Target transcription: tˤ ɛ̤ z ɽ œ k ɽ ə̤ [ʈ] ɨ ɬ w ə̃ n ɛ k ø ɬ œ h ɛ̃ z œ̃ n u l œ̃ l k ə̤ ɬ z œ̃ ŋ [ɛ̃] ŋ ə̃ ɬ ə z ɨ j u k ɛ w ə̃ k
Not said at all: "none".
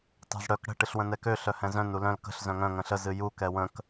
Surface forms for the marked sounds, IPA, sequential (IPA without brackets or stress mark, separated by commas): ʈ, œ̃